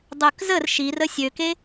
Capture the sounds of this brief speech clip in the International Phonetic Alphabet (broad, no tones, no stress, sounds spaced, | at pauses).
dˤ ø k z ə r ʃ i r ə sʲ ø k e